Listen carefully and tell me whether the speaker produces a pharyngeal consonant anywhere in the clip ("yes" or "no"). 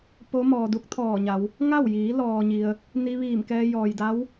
no